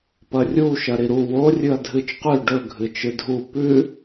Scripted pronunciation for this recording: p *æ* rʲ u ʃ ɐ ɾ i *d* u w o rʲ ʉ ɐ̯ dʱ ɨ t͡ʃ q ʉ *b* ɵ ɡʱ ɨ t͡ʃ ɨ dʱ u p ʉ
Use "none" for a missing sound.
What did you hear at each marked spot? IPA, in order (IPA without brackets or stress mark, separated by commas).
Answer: ɐ, ɾ, ɖ